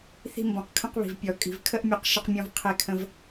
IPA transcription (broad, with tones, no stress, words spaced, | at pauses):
θi̤˧mbɔ̃˩qkʰə̃˧qβi̤˩v pʲɔ˩ kʼi̤˩vkʰə˥ʔmʲɔ˧q ʃə˧qmʲɔ̃˧v qʰe˧kʰə̃˧v